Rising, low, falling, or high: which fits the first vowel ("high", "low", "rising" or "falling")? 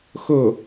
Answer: falling